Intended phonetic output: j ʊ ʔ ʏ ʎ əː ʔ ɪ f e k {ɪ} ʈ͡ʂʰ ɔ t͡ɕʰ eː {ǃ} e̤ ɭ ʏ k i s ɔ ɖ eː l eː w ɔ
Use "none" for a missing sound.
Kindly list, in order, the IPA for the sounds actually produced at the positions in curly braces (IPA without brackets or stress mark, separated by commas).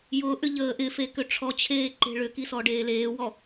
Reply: ʏ, ǃ